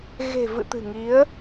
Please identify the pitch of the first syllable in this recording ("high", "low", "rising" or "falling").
low